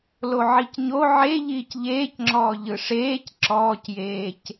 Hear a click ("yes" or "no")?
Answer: yes